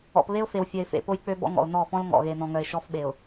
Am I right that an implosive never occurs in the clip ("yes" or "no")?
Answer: no